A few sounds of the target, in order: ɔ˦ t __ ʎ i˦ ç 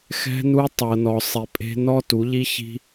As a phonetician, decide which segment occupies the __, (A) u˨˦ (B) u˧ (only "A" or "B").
A